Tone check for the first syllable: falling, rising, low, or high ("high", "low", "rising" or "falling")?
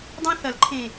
high